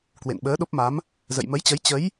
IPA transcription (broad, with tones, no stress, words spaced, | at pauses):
kwḛ˧˨nɓəː˨˦ ɗo˦˥p̚ma˨˦m | zə̰˧˨jmə˨˦jt͡ɕə˨˦j t͡ɕə˨˦j